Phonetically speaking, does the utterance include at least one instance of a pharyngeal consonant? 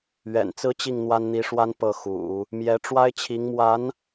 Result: no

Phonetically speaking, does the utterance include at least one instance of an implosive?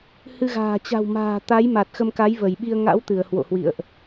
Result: yes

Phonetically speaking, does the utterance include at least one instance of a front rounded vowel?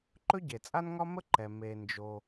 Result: no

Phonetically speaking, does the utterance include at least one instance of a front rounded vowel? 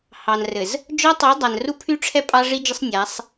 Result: yes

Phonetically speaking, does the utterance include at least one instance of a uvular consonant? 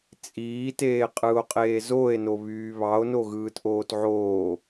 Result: yes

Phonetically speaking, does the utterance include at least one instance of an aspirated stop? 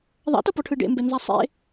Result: yes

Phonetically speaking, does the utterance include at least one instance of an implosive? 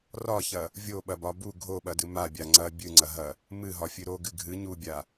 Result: yes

